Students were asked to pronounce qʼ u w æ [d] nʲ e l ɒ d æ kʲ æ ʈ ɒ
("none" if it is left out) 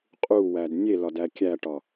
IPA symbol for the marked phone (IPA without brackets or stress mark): d